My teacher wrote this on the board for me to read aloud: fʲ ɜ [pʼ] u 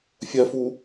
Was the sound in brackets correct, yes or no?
no